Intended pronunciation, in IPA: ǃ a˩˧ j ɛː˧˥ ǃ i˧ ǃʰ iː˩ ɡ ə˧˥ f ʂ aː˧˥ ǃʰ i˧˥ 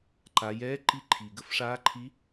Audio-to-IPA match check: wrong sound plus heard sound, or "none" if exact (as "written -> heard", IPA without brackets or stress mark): none